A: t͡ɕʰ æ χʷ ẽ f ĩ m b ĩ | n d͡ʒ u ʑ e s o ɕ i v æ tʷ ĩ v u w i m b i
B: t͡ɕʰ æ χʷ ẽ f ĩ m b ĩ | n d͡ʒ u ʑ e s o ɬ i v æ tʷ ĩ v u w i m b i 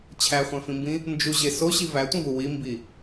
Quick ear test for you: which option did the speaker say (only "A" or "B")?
A